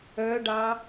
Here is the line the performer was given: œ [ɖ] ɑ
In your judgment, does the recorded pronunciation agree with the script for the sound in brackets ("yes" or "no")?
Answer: yes